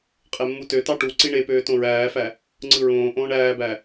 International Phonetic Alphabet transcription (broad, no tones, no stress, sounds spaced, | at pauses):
qʼ e mː u t ø t ɑ ʈ u ǀ i ɳ e p øː t õ ɹ æː f æ | ŋ͡ǀ ɯ ɹ õː ʔ õː ɳ æː b æ